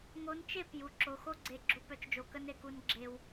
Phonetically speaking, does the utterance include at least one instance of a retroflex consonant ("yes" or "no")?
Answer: no